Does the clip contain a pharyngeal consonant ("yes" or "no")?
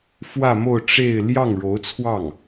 no